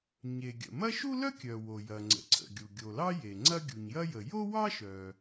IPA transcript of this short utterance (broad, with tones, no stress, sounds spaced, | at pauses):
ɲ e˩ ɡʲ ə̰˩ m ɐ˥ ʃ u˥ l œ˥ kʲ œ˩ w o˩ j ɐ˩ ŋ͡ǀ ə̰˩ ǀʰ ə̰˩ ɡʲ u˩ ɡʲ o˩ l ɑ˥ j e˩ ŋ͡ǀ ɐ˥ ɡʲ u˩ ɲ j ɐ˥ j ə˩ j o˥ w ɑ˥ ʃ œ˩